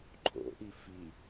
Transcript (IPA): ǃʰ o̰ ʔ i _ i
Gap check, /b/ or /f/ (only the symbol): f